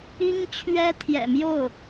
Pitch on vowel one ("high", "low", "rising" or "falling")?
high